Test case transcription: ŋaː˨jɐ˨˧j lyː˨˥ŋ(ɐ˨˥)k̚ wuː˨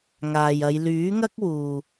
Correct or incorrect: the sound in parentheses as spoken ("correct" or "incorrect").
incorrect